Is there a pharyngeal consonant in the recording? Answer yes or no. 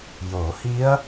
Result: no